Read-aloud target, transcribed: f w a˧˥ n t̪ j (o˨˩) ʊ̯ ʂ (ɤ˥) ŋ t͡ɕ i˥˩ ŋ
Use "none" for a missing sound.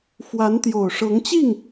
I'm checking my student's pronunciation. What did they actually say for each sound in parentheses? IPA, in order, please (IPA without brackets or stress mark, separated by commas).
o˨˩, ɤ˧˥